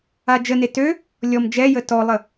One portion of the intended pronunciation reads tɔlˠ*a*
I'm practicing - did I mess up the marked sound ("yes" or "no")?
yes